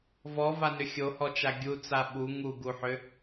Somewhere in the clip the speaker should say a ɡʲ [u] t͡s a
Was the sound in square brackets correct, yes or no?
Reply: yes